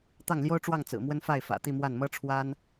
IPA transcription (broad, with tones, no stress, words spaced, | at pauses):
t̪ɑ˥˩ŋljo˥ʊ̯ʈ͡ʂwɑ˥˩ŋ t͡sɹ̩˨˩mwə˥n fa˥˩ɪ̯ fä̰˨˩t̪i˥˧mwa˥˩n mɤ˥ʈ͡ʂʰwa˥n